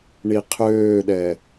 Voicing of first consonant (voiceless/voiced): voiced